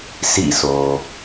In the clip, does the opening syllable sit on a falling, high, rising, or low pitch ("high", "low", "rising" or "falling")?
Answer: falling